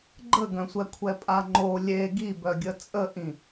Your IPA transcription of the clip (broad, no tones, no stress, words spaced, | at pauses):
ɡ͡ǃəɡœ̃sʷɛ kʷʰɛpʼaŋ͡ǃo lʲe ɡibœɡʲə t͡sʼəʔĩ